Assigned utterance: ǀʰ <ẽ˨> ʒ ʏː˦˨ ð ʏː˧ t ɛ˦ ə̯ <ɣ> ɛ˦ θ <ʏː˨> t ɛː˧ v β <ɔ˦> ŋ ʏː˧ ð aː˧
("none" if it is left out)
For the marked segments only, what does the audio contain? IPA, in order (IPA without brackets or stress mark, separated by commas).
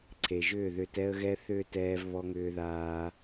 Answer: e˨, ɣ, ʏː˦, ɔ˧